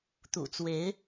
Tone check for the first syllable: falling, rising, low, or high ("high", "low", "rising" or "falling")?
low